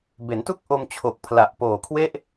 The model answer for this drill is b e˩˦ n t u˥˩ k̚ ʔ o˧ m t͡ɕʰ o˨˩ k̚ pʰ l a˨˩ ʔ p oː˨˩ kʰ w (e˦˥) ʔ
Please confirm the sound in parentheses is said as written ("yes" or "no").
no